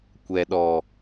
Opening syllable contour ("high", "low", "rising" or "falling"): low